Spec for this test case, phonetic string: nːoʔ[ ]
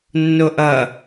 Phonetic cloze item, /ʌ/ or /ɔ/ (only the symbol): ʌ